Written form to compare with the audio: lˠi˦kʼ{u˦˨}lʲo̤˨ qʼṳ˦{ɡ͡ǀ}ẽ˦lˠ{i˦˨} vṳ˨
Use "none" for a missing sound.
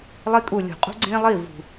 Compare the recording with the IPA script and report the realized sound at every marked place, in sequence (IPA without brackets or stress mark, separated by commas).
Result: u˦˨, ɡ͡ǀ, i˦˨